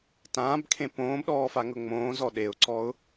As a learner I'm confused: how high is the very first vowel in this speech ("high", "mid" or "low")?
low